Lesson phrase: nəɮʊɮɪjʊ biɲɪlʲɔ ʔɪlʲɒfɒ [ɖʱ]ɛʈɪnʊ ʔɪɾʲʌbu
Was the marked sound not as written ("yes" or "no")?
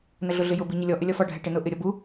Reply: no